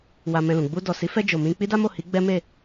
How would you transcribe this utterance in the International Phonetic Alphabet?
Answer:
wa˧mɛ̃˧lũ˨ ɡ͡bu˧ dɔ˨si˨˦fɛ˧d͡ʒo˨ mĩ˧k͡pi˦da˦mo˦˨ hi˨˦ɡ͡bɛ˦me˦˨

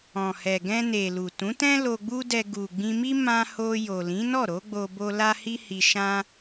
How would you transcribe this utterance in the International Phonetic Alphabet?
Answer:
ɔ̃˨hɛ˨ɡɛ̃˧ne˨ lu˨tũ˨˦tɛ̃˦ lo˧ɡ͡bu˦dɛ˧ ɡu˨ɡ͡bĩ˧mi˦ mã˧ ho˧jo˨lĩ˨˦nɔ˦˨ ɾo˨˦ ɡ͡bo˧bo˧ la˦hi˦ hi˧ʃã˦

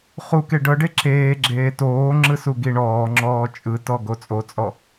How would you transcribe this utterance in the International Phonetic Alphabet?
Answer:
χuke ɖɤɖe ǁeːɡ͡ǁeː toːŋ͡ǁɯ suɡiɳɔːŋ͡ǁɔː t͡ʃʼɯtɔ ɡot͡sʼot͡sʼɔ

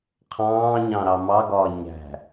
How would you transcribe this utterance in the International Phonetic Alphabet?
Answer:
qʰɑ̃ːɲɑ̃ ɾɑmɑɡɒː ɲæ̤

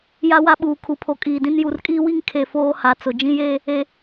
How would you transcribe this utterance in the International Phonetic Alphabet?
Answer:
ja˦wa˦ɓuː˨ kʰu˨pʰo˨kʼiː˨dĩ˦n ju˨rkʼiː˦wi˦ŋ kʰe˨ foː˦ha˨˦t͡sʊ˨ d͡ʒĩ˦jeː˦ | e˨

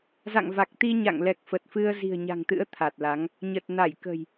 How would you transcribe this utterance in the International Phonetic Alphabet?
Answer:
za̰˧˨ŋva˨˩k̚t̪i˧ ɲa̰˧˨ŋlɛ˨˩k̚fə˨˩t̚fɨ˧ə̯ zi̤˨˩ə̯ ɲa̤˨˩ŋt̪ɨ̰˧˥ə̯ t̪ʰa˨˩t̚la˨˦ŋ | ɲə˨˩t̚ na˧˩jkə̤˨˩j

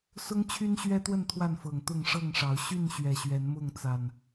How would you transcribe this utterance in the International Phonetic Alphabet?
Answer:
sʊ˦ŋt͡ɕʰy˦nɕɥɛ˦t̪wə˥˨n t̪ʰwa˥˨nfɤ˨˩ŋt̪ʊ˥˨ŋ ʂɤ˥˨ŋʂɑ˨˦ʊ̯ ɕy˥˨n ɕɥɛ˨˩ɕɥɛ˨˦nmʊ˥˨ŋ t͡sa˨˩n

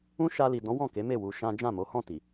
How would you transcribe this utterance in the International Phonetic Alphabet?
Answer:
ũ˦ ʃa˧li˨dɔ̃˨˦ wɔ̃˦˨ke˨˦me˦˨ wu˧ ʃã˦ d͡ʒã˦˨mo˨˦hɔ̃˦˨ ti˨

